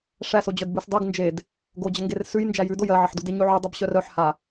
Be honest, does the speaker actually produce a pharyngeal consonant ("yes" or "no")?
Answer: yes